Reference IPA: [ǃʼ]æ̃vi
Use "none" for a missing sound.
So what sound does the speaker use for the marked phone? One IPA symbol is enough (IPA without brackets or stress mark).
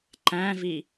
ǃ